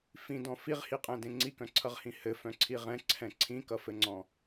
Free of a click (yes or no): no